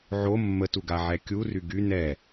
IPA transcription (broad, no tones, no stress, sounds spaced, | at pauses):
ʕ o mː ə t u ɡ a ʕ ɛ kʲ u r y ɡ y n ɛ